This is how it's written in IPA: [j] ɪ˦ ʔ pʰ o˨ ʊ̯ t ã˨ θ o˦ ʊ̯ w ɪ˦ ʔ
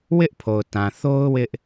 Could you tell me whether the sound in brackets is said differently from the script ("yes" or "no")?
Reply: yes